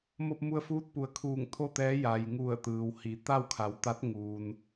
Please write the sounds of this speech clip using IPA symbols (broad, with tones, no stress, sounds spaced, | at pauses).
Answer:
m o˧ p̚ m u˧ ə̯ f uː˧˥ t̚ p u˩˧ ə̯ kʰ uː˧˩ ŋ t̪ʰ o˥˨ t̪ ɛː˧˥ j a˩ j ŋ u˧˩ ə̯ t̪ ɯː˩ w h i˩˧ t̪ a˥˨ w kʰ a˩˧ w t̪ a˧˥ t̚ ŋ uː˩ n